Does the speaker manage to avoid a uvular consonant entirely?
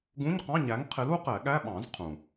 no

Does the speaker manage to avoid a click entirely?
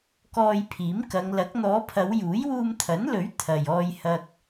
yes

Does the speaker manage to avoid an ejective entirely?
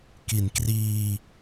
yes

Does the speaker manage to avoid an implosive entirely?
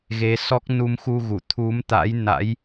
yes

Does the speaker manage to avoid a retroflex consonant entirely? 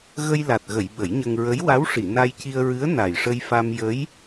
no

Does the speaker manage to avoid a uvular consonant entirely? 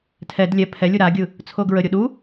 yes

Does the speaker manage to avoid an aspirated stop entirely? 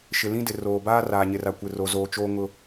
yes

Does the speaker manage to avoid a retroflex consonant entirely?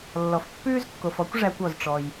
no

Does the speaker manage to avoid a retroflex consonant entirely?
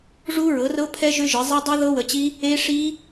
no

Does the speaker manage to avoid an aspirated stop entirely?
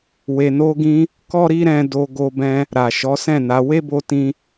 yes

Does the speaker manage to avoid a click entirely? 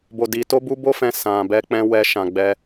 yes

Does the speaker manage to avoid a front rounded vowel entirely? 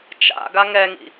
yes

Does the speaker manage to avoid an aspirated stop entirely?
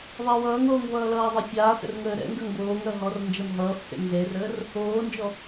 yes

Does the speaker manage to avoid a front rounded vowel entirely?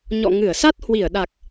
yes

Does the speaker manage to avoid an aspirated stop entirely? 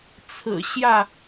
no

